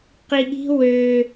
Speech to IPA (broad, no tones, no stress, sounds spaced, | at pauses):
q i ɠ i̤ w ø